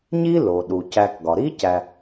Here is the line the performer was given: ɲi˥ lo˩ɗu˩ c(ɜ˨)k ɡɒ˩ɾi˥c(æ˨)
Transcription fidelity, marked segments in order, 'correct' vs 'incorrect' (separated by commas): incorrect, correct